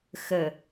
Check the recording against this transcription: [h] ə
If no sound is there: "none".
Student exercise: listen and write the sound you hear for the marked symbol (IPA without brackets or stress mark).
x